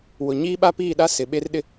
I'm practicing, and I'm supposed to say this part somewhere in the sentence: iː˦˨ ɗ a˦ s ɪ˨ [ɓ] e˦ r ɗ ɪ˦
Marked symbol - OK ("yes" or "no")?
yes